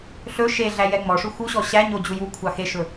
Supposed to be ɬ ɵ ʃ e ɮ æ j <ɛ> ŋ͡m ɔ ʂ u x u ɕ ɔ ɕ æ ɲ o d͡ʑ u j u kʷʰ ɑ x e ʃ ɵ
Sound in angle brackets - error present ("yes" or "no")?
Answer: no